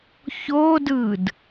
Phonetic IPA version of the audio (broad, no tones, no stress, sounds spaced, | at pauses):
ç o d ɯ d